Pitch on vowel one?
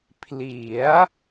rising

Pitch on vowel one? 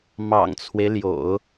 low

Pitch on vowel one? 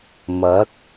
rising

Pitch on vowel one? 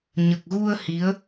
low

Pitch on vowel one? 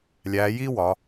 rising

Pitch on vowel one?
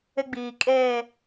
high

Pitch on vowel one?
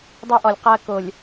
high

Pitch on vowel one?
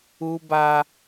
high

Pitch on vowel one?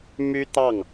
high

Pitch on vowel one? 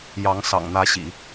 rising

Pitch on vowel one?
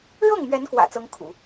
falling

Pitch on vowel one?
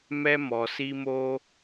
high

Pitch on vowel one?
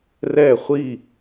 falling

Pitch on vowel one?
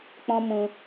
high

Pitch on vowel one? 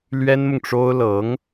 high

